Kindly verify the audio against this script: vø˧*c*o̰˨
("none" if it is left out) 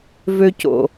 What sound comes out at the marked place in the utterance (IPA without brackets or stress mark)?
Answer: c